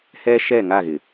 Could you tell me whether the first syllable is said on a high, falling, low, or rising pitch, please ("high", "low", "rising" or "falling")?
high